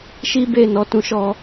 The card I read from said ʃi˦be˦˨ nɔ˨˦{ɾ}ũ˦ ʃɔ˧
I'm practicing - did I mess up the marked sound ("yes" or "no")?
yes